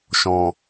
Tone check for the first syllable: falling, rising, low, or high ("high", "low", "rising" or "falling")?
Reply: low